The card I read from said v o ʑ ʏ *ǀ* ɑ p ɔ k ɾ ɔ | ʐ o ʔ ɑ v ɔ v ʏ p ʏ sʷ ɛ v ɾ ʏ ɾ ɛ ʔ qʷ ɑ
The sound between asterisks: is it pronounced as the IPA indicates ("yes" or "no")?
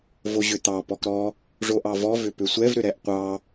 no